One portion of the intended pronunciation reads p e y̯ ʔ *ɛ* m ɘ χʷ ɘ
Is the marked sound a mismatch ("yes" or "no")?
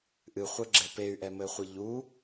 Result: no